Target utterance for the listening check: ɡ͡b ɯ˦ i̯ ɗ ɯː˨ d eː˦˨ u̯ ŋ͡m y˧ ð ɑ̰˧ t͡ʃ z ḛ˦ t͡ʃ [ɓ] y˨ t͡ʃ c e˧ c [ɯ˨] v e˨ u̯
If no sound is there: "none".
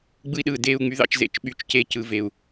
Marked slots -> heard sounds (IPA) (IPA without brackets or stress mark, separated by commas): ɓ, ɯ˨